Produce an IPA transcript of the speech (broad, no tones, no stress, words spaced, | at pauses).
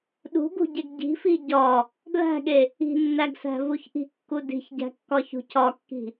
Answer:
ɗṳɡṳɟeɡ ɟi̤fi ɟɒ | dlæ̤ɠe | i̤nːæɡsæ̤vuç ʔi̤kːu di̤çɟæ̤kːɒçṳ cʰɒkːi̤